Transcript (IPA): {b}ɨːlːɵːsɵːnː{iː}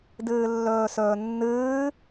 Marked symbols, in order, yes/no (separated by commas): no, no